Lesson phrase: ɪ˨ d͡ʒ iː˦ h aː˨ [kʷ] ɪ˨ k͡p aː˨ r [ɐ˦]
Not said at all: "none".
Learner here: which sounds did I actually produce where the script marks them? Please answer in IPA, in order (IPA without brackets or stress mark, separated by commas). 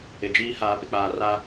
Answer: p, a˦